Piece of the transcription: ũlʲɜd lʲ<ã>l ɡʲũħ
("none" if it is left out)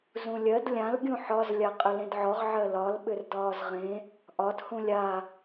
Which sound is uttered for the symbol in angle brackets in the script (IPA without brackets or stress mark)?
ã